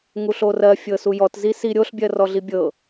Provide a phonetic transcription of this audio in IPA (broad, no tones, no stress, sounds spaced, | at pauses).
ŋ u ɬ o r ɜ fʲ ɤ s u j ɔ t z i s i ɾʲ o ɬ bʲ ɜ r ɔ ɮ i bʲ ɤ